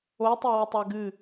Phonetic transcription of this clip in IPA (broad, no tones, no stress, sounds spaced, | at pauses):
o tˤ a w ə tˤ a ɡ ɨ